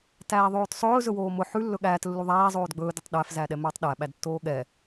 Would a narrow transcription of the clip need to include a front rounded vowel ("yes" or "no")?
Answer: no